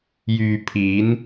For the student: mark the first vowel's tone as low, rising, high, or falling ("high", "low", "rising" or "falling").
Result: low